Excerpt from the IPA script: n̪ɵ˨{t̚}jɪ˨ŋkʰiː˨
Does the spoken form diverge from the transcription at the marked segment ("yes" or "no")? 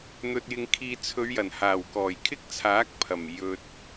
no